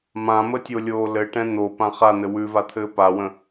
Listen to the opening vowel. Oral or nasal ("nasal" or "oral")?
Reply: nasal